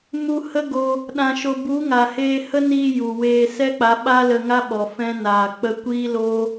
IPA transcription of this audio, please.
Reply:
m u˧ h ə˦ ɡ o˧ | ɗ ã˧ ʃ o˧ b u˨˦ ŋ a˨ h eː˧ h ə˦ n iː˧ j u˨ w eː˧ s ɛ˦ k͡p a˨˦ ɓ aː˦ l ə˧ ŋ a˦ ɓ ɔ˨ f ɛ̃˦ n aː˨ k͡p ə˧ kʷ iː˦ l o˦

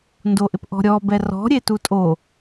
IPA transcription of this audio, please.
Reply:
n d o ʔ ɪ p ʔ ɔ̤ ɾʲ ɔ b ɛ r ɔ̤ ɾʲ e t u tʼ o

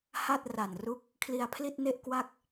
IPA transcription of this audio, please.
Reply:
h a˥˩ t̚ r a˨˩ n r u˥˩ k̚ | kʰ l i˧ a̯ pʰ l i˥˩ t̚ n e˥˩ ʔ k w a˥˩ k̚

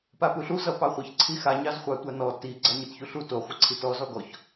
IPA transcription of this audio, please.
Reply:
p a p u ɬ u z ʌ p ɑ χʷ ʌ ç ǀʰ i x a ɲ ɑ z χʷ ɑ tʷ a n ɔ t i ɡ͡ǀ a ɲ ɯ t ç u ɬ u t o χʷ ʌ ǀʰ i t ɔ z ɔ ɡ ɔ ç

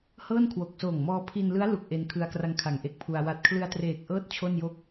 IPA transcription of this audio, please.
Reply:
h ɤː˥˩ n kʰ w o˨˩ k̚ s oː˨˩ ŋ m ɔː˧ pʰ i˧ n l ɯ˦˥ a̯ l u˨˩ k̚ ʔ e˧ n kʰ ɯ˧ a̯ k r a˧ ŋ kʰ a˨˩ ŋ ʔ e˥˩ k̚ pʰ u˧ a̯ w a˨˩ t̚ kʰ l ɯ˧ a̯ t r eː˨˩ k̚ ʔ ɤː˥˩ t̚ t͡ɕʰ o˥˩ n j o˥˩ k̚

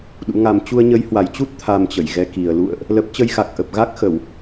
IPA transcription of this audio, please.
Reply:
ɗ ṵ˧˥ ŋ a˧ m t͡ɕ u˧ ə̯ ɲ ə˨˦ j h w a˨˩ j t͡ɕ u˦˥ t̚ t̪ʰ a˧ m t͡ɕ ə˧˩ j ɣ ɛ˨˦ k i˨˩ ə̯ l ṵ˧˨ ə̯ ʔ | l ə˦˥ p̚ t͡ɕ ə˧ j x a˨˩ k̚ ʔ ə˨˩ p̚ ɣ a˦˥ k̚ x ə˧˩˨ w

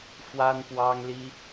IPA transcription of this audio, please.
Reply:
f w a˥ n p w ɑ˥ ŋ l i˥

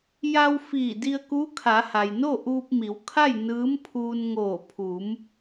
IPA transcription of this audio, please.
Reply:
j a˧ w f iː˧˩ d i˧ ə̯ k uː˧˥ kʰ a˩˧ h a˩ j n o˥˨ ʔ uː˧ p̚ m i˩˧ w kʰ a˥˨ j n ɯː˧˥ m pʰ uː˧ n ŋ oː˧˩ pʰ uː˩˧ m

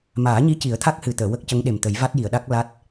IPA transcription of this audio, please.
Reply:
m aː˨˩˦ ɲ i˧˥ c i˨˩˦ ə̯ t̪ʰ a˦˥ k̚ h ɨ˨˩ t̪ əː˨˩˨ w ə˦˥ k̚ c ə˧˥ ŋ ɗ e˨˩ m t̪ ə˨˩˦ j v a˦˥ t̚ j i˨˩˨ ə̯ ɗ a˦˥ k̚ l a˦˥ t̚

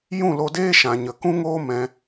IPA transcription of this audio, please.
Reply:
j ũ˦˨ l o˧ d eː˦ ʃ ã˨ ɲ ə˨ k ũ˦ ŋ oː˦ m ɛ̃˧

